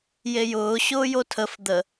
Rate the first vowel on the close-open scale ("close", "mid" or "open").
mid